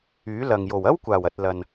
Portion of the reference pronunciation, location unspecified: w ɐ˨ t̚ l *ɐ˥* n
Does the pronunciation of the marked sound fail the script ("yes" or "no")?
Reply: yes